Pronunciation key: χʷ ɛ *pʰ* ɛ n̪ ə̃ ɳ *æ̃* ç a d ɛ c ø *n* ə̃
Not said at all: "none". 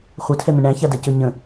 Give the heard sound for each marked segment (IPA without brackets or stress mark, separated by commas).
tʰ, æ̃, ɲ